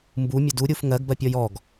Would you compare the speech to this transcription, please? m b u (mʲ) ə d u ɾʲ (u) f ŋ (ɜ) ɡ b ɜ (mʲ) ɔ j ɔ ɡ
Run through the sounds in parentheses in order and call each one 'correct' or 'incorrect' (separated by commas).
correct, correct, correct, incorrect